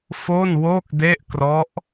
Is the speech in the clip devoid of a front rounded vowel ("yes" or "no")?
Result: yes